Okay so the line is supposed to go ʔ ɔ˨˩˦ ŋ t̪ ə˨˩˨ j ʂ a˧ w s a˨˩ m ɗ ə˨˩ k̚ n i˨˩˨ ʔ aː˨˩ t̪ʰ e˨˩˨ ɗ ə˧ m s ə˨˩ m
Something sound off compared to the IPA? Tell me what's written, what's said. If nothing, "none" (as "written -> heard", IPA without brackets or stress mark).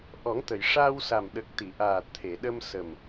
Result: n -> t̪